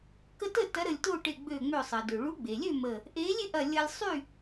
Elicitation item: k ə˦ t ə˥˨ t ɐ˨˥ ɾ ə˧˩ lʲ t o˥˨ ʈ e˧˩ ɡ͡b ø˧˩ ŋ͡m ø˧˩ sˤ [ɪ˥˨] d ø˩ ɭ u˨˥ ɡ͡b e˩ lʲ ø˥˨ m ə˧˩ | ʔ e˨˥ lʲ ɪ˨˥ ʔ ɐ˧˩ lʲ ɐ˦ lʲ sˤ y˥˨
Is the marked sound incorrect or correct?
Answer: incorrect